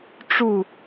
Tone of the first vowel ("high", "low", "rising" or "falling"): falling